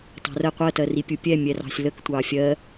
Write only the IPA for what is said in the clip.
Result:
t ɑ̤ r ə qʷ ɜ t ɜ r i pʲ u pʲ ɛ mʲ ɛ r ɑ̤ sʲ l ə k tʷ ɑ fʲ ɜ

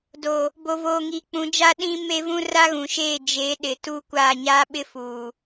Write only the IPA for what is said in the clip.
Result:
d o˨ | b o˨ v oː˨ ŋ iː˨ k͡p ũ˨˦ d͡ʒ a˦ ɗ ĩ˦ m e˦ v ũ˦ r a˦ ɣ ũ˨ ʃ eː˦˨ d͡ʒ eː˨˦ ɗ ɪ˨ t u˦ kʷ aː˦˨ ɲ aː˦ ɓ ɪ˦ f uː˨

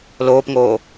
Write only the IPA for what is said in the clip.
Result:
l oː p ŋ oː

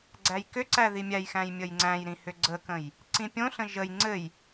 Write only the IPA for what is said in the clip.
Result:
ɡ͡ǀ æ j k ʏ ǀ æ ð i mʲ æ j x æ̃ j mʲ ə j ŋ͡ǀ æ̃ j ɾ ĩ h ʏ ɡ͡ǀ ə k ə̃ j | ǀ ĩ pʲ õ ɬ ə̃ ʒ ə j ŋ͡ǀ ɘ j

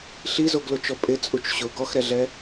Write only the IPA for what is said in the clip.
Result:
ɬ i z o ɡ l o t͡ʃ ɔ pʼ ɪ t͡sʼ u t͡ʃ ɕ ʊ ɡ ɔ x ɾ ɛ ɮ ɛ

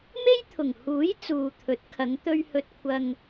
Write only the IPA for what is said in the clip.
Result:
m e˥ j t̪ʰ ʊ˨˩ ŋ h uː˨˥ j t͡s uː˨ t̪ʰ ɵ˨˥ t̚ kʰ ɐ˨˧ ŋ t̪ ɵ˧ ɥ h ɵ˧ t̚ kʷʰ ɐ˧ ŋ

